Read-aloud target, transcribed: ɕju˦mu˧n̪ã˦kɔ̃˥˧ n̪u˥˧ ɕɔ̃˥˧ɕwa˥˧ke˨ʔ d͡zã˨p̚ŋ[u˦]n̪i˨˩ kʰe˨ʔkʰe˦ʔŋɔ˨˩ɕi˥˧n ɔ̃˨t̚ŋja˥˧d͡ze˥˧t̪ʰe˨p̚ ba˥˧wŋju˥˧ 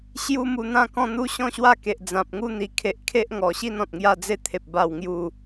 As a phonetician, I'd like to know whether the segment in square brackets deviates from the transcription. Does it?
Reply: no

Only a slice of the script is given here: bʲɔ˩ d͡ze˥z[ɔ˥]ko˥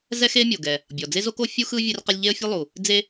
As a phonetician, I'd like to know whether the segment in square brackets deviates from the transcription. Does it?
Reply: yes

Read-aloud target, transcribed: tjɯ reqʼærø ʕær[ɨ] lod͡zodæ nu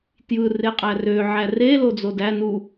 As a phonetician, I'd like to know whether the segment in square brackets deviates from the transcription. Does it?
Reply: yes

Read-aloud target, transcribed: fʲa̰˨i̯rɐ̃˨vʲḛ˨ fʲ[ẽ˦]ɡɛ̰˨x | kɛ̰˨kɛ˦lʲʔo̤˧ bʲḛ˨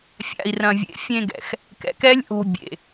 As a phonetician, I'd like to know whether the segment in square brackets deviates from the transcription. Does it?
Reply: yes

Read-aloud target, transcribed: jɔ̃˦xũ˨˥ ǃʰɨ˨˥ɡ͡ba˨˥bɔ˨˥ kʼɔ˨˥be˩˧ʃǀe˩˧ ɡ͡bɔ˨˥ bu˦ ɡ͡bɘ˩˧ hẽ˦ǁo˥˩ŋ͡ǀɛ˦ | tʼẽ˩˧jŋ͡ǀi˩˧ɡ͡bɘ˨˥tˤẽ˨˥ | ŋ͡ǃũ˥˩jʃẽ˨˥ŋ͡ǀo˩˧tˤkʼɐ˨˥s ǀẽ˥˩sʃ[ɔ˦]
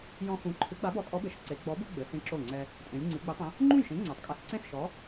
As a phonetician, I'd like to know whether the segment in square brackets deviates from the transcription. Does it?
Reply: yes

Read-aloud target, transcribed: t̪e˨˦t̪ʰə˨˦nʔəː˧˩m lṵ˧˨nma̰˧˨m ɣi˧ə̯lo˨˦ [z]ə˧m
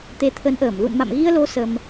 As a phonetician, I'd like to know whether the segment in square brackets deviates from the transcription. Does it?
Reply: yes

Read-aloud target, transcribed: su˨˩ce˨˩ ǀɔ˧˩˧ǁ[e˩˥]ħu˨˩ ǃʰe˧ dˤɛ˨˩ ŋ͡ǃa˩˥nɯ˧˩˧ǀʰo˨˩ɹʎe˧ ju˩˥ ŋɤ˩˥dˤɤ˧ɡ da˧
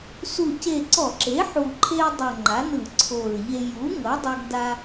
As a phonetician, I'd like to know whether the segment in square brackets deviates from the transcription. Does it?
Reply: no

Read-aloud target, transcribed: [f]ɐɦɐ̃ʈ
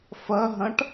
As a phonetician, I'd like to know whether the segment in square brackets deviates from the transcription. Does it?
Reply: no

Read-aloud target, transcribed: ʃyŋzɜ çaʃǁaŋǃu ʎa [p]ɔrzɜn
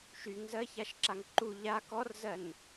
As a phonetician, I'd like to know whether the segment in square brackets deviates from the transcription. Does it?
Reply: yes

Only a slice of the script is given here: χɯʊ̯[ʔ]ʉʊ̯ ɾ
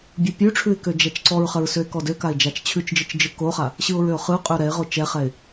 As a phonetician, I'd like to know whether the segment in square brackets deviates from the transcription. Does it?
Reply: yes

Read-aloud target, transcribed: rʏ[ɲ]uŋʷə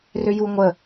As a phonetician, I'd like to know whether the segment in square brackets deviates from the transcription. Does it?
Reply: yes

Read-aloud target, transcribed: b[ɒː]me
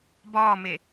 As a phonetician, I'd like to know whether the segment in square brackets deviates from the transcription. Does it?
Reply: no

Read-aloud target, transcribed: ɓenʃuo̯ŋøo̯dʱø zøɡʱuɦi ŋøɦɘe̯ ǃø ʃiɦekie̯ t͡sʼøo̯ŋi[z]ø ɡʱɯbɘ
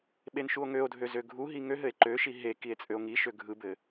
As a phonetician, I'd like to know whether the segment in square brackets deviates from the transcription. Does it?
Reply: yes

